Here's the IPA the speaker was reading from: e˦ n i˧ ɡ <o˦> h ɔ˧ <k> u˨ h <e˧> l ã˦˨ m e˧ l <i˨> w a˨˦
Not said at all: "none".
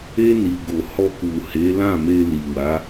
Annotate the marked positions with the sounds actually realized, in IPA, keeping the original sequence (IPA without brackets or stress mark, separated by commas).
o˧, k, e˨˦, i˨